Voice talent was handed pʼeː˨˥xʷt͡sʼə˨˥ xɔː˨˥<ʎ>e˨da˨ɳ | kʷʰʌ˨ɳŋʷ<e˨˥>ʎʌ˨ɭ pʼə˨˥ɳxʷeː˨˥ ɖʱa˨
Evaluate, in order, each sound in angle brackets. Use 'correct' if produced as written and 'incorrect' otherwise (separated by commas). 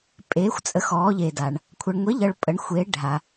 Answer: correct, correct